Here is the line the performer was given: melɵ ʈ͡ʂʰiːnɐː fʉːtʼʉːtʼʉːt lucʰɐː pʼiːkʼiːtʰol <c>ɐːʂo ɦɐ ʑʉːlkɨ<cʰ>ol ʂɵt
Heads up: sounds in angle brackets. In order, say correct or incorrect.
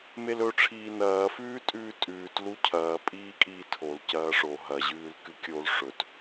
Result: correct, incorrect

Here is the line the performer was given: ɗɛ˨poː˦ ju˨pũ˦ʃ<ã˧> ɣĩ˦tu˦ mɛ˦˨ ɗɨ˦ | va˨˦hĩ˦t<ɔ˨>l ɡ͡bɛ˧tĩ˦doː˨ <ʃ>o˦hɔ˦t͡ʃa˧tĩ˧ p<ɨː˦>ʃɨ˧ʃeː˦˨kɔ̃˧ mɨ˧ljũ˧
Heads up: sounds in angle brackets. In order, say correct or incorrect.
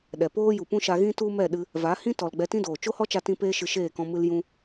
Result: incorrect, correct, incorrect, incorrect

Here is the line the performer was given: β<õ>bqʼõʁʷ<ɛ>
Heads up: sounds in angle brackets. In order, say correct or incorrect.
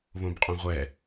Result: correct, correct

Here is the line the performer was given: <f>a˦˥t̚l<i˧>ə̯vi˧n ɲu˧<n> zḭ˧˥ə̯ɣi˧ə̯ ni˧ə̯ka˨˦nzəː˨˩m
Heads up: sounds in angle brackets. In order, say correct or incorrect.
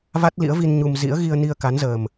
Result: incorrect, incorrect, incorrect

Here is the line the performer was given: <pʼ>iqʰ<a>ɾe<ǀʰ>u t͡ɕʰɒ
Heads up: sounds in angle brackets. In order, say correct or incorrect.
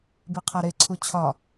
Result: incorrect, incorrect, correct

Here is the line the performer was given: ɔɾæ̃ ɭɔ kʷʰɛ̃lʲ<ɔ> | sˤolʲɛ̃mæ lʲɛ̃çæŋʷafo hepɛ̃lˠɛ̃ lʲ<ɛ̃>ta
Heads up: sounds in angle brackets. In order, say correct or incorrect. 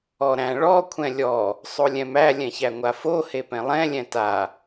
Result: correct, correct

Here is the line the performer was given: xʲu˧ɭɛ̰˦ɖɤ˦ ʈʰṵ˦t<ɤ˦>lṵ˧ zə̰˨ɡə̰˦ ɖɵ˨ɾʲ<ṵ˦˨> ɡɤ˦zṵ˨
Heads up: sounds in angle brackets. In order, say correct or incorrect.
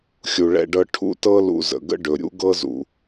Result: correct, incorrect

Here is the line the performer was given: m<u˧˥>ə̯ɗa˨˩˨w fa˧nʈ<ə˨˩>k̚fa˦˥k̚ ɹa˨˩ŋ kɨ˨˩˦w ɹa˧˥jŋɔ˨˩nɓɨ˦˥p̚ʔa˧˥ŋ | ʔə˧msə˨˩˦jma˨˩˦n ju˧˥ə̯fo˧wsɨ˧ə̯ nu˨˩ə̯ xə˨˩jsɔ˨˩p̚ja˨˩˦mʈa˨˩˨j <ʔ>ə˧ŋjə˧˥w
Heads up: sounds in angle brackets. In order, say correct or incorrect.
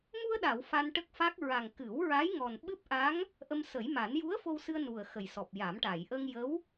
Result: incorrect, incorrect, correct

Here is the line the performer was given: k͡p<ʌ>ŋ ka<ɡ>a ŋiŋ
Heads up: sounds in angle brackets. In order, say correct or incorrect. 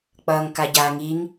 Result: correct, incorrect

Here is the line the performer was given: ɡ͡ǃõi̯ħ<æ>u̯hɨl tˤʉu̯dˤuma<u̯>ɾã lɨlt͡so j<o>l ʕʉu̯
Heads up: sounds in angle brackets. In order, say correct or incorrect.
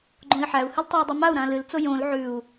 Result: correct, correct, incorrect

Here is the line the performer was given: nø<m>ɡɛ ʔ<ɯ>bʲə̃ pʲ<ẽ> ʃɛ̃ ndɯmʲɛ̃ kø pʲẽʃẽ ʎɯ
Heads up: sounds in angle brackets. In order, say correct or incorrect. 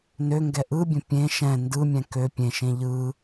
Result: incorrect, correct, correct

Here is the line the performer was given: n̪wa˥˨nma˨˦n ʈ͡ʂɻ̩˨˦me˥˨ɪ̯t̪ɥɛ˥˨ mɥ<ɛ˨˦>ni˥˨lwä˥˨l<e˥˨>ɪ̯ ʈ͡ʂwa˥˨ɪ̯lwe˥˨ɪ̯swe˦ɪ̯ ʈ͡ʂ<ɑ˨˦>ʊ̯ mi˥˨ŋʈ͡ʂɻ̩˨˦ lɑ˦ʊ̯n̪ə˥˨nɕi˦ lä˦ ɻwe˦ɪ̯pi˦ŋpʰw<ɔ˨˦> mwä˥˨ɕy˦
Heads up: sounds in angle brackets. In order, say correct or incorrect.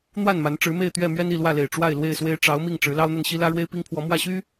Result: incorrect, incorrect, correct, correct

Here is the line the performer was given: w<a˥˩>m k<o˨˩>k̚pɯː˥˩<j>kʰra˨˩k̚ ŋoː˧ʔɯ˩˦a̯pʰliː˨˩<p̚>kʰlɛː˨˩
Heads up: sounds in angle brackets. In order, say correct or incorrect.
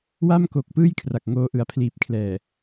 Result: correct, correct, correct, correct

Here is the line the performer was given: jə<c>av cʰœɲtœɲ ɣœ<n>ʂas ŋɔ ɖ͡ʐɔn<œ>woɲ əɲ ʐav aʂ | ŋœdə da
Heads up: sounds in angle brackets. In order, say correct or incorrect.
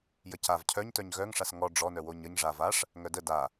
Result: correct, incorrect, correct

